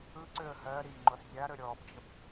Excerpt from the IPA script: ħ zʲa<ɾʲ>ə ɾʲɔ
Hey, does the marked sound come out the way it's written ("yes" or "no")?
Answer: no